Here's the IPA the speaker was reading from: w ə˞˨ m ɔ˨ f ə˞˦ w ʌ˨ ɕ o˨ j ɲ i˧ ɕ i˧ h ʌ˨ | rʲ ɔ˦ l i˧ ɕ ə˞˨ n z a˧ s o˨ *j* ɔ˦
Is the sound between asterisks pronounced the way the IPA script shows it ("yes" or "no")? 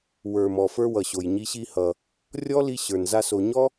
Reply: no